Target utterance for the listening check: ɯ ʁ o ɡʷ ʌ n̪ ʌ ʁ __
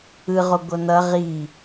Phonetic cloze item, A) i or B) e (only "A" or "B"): A